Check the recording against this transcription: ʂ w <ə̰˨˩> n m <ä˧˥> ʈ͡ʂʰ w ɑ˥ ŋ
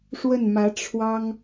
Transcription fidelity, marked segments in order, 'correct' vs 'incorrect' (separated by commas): incorrect, correct